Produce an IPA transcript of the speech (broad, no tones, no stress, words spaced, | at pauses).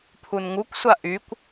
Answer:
pʰunŋukʷsʷa ʔykʷ